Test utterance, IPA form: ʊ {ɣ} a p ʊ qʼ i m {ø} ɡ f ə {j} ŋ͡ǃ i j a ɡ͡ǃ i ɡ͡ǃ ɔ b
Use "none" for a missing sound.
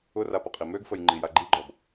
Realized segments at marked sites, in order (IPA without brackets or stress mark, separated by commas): r, ø, j